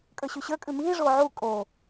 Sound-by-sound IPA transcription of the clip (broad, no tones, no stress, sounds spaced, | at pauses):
kʼ ə˞ ɕ ʉ ɕ ə˞ kʼ ʉ m iː ʐ oː ʕ u kʼ o